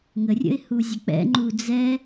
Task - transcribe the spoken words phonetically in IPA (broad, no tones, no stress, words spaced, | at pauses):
ŋərʲə̰ɪ̯ huzʲək͡pɛ̰ŋ͡ǃu d͡zɛ